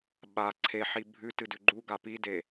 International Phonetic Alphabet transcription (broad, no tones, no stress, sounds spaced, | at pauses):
ɓ a ǀʰ e ħ i bʱ ʉ t ɨ d ʉ ɡ͡ǃ u ɡ a p i d e